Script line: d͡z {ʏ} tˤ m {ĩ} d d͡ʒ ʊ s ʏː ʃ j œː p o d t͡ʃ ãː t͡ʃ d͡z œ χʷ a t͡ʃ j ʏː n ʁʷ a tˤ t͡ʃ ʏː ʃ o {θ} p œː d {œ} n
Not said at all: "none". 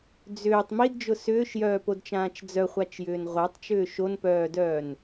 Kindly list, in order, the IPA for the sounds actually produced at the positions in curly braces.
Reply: ʏː, i, n, œː

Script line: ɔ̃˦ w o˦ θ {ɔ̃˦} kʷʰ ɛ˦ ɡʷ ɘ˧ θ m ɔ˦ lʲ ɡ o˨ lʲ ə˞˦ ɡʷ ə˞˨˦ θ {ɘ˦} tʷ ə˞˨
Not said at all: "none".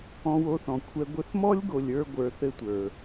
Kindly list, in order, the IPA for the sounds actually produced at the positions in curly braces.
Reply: ɔ̃˨, ɘ˦

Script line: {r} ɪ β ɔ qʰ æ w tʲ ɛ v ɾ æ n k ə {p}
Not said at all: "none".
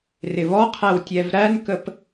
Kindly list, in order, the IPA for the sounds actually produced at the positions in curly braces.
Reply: r, p

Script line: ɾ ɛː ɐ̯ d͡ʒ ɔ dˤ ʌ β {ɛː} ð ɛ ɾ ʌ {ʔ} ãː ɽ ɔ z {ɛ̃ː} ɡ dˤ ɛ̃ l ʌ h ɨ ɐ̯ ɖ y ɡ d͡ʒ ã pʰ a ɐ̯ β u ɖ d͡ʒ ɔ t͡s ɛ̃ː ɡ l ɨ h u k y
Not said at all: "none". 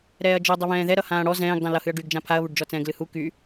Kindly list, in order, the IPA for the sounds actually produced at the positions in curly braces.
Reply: ɛ̃ː, h, ɛ̃ː

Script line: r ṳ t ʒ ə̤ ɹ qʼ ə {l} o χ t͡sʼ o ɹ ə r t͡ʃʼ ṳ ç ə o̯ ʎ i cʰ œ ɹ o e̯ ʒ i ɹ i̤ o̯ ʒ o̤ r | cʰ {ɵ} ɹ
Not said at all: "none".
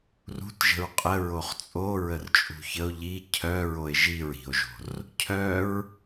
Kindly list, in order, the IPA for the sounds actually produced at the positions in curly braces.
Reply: ɹ, œ

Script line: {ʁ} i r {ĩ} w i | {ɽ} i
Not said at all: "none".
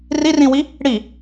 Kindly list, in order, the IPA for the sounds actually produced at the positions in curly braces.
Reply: r, ĩ, ɽ

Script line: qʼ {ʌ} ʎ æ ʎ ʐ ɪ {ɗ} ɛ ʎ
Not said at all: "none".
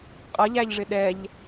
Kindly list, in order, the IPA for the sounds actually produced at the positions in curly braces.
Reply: ʌ, ɗ

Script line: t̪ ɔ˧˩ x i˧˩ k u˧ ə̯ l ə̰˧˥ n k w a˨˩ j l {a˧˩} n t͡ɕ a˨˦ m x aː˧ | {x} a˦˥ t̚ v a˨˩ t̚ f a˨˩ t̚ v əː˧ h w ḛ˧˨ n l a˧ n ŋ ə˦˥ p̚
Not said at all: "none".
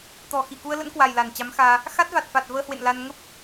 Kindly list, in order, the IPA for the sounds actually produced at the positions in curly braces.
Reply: a˧˩, x

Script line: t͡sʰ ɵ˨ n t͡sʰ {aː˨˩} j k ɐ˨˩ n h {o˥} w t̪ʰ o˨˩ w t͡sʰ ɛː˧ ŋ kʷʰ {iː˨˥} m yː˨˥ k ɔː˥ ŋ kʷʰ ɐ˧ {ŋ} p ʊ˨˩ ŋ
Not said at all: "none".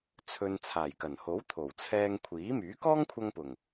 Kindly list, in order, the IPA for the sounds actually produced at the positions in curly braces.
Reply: aː˨˩, o˨˥, iː˨˥, ŋ

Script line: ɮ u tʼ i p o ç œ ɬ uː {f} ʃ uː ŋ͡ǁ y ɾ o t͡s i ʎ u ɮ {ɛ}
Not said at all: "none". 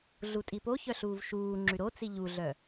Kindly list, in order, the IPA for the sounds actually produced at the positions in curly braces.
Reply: v, œ

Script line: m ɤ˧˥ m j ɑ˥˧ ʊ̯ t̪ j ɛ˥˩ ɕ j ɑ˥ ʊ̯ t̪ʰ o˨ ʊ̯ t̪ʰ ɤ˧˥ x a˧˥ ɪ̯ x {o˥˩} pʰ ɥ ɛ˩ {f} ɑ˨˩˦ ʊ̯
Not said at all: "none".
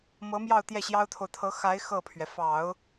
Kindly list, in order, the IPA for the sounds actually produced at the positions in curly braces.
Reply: ɤ˥˩, f

